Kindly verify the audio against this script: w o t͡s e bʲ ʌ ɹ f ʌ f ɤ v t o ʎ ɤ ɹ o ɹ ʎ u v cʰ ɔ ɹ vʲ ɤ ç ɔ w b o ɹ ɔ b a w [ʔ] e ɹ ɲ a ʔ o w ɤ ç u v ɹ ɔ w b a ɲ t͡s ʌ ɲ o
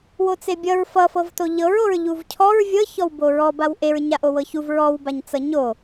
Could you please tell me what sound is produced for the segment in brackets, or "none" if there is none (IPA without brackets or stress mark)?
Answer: ʔ